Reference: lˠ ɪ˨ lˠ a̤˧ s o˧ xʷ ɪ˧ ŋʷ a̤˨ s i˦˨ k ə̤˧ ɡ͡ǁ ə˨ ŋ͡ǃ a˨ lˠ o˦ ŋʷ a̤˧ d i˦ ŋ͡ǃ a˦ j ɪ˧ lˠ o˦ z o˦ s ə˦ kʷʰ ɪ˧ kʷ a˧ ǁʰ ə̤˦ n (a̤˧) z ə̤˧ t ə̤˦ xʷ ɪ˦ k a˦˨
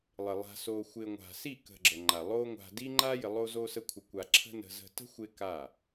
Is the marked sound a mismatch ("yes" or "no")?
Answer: yes